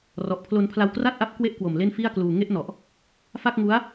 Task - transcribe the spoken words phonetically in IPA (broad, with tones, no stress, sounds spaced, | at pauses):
r ɔ˨˩ ʔ pʰ l o˧ n pʰ l a˧ w k r a˥˩ t̚ ʔ a˦˥ p̚ k w e˦˥ ʔ k w o˨˩ m l e˥˩ n f i˥˩ a̯ k l uː˧ ŋ e˥˩ ʔ n ɔ˨˩ ʔ | f a˥˩ k̚ ŋ u˦˥ a̯